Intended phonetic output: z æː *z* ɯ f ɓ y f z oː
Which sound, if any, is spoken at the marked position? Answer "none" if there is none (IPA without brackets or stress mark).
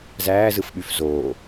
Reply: z